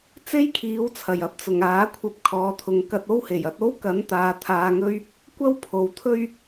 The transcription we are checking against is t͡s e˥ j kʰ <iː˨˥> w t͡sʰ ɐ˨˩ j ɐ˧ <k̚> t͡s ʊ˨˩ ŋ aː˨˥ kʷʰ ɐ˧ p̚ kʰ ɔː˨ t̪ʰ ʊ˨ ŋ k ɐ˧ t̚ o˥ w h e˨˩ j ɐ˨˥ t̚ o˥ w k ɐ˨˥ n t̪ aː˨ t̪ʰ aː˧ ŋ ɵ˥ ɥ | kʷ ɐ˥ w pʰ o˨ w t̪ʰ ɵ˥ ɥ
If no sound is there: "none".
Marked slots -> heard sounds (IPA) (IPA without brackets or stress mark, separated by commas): iː˨˥, p̚